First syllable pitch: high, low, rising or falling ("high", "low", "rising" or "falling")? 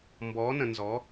rising